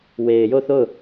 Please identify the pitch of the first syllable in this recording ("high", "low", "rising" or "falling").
low